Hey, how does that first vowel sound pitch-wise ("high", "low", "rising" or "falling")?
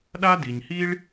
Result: high